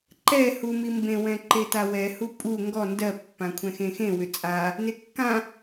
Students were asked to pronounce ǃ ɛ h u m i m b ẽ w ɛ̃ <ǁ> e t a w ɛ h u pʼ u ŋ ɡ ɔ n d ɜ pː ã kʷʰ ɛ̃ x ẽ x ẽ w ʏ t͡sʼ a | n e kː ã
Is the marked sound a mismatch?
yes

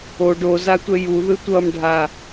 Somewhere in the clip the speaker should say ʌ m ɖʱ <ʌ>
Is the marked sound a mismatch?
yes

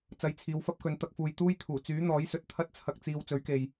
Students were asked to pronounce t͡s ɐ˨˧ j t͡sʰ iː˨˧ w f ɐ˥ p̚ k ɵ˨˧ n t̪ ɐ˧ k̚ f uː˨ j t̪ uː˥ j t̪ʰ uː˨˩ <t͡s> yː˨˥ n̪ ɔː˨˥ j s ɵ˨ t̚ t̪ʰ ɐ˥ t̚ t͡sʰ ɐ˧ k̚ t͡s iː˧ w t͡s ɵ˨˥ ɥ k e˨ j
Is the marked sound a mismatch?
no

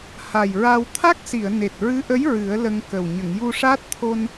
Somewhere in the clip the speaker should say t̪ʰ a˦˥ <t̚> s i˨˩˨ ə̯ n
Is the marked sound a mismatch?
yes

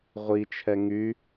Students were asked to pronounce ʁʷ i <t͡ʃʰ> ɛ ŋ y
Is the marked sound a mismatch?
no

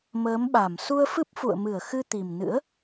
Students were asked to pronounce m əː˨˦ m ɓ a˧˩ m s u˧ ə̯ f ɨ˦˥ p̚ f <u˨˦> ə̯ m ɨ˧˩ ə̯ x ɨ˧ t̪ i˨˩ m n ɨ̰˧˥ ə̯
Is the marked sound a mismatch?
yes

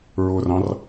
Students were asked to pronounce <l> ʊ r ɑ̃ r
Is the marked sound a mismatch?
yes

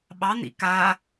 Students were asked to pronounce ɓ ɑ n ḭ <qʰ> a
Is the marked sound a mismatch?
yes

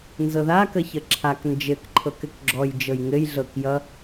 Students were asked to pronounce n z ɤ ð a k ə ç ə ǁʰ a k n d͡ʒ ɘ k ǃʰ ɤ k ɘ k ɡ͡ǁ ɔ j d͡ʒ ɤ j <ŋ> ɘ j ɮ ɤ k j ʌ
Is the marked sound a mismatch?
no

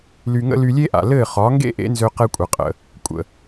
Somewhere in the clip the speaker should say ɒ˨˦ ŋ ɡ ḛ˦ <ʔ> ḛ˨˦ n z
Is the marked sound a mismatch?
no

